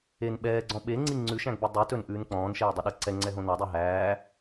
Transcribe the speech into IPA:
e n ɓ ɛː ɡ͡ǀ ɔ̃ ɓ e ŋ͡ǀ i ŋ͡ǀ ʉ ʃ æ̃ ɡ b ø dˤ y t ɵ n ʔ ʉː n k͡p ɔ̃ː n ʃ ɛː dˤ e ɗ ɛ ǀ ɛ ŋ͡ǀ ɛ ɦ õ n ɑ dˤ i ɦ æː

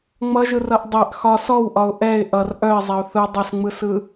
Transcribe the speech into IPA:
ŋ͡m ʌ ʒ ɯ r ʌ ʔ dˤ ɛ ʔ x ɒ s ɔ w ʔ ɒ ʊ̯ ʔ ɛ ɪ̯ ʔ ʌ r ʔ œ ɪ̯ zˤ ɛ ʊ̯ θ ɯ dˤ ʌ s ŋ͡m ɯ s ɯ

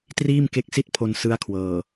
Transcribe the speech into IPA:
t r iː˥˩ m k e˦˥ k̚ s i˥˩ t̚ pʰ o˧ n s ɯ˦˥ a̯ kʰ w ɤː˨˩

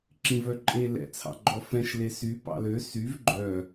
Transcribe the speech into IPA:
ǁ ĩ v œ ǃʼ e l ɛ̰ t͡sʰ ɑ̰ ɡ͡ǃ ɔ f ɛ̃ ʃ l e s y p ɑ̰ l ø s y v ɡ͡ǃ œ

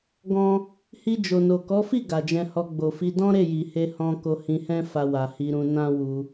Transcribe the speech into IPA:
ɡ ɔ̃˦ | h i˧ d͡ʒ o˨ n o˨ k ɔ˨˦ f i˦˨ ɡ a˨ d͡ʒ ɛ̃˧ h ɔ˧ ɡ͡b o˨ f i˧ d ɔ̃˦ ɾ e˦˨ j i˨ h e˧ h ɔ̃˧ k o˧ h ĩ˧ h ɛ̃˦ f a˧ w a˨ h i˧ ɾ ũ˧ n ã˦ w u˧

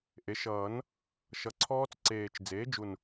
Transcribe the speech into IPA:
ʔ e˩˥ ʃ ʌː˨˩˦ n | ʃ ʌ˨˩ ǀʰ ɔː˦˥ t͡s ǀ eː˨˩ t͡ʃ d͡z eː˩˥ d͡ʒ u˨˩ n

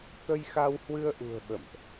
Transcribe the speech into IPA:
t̪ ə˧ j x a˧ w h w ɨ˧ ə̯ ʔ ṳ˨˩ ə̯ ɓ ə̰˧˨ m ʔ

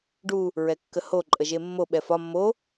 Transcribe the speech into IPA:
ɖ u | ɹ ɛ kː ə h o ǃʼ ə ʒ e mː o ɓ ɛ f ɒ mː o

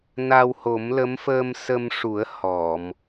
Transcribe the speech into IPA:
n a˧ w h o˨˩˦ m l ə˧˥ m f əː˧ m s ə˧ m ʂ u˨˩˦ ə̯ h ɔ˨˩˨ m

